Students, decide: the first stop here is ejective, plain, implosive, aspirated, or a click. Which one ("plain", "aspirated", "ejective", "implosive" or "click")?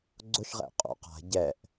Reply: click